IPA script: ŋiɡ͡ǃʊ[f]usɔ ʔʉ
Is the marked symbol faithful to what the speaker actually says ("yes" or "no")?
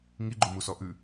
no